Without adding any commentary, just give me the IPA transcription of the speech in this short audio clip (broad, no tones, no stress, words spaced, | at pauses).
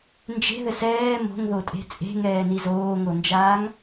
nd͡ʒe̤ðɘs ɛː mo̤ŋðotʼe̤ t͡sʼe̤ŋɛːni zoːŋond͡ʒaːŋ